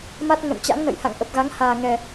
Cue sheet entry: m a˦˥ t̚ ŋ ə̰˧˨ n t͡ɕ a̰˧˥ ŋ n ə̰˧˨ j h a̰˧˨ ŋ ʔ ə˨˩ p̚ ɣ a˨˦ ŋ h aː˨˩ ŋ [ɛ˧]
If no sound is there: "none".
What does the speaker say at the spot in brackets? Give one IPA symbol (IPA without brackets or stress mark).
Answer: ɛ˨˩